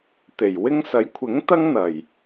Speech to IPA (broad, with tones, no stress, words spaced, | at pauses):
t̪e˨˩jwɪ˥ŋ sɐ˨˥jkʷʰɪ˨˥ŋt̪ɐ˥ŋ n̪ɐ˨˩j